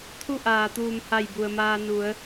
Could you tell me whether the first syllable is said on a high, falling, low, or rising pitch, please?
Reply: falling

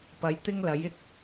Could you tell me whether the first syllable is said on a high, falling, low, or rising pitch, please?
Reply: rising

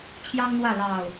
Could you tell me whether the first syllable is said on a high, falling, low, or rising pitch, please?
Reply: high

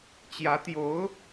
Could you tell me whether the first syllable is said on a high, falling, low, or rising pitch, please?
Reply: rising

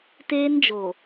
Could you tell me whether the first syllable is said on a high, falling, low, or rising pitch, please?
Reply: high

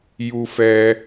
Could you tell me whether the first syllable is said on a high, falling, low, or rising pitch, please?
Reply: high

